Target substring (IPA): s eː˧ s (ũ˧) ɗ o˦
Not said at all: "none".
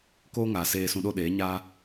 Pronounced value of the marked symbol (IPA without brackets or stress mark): ũ˧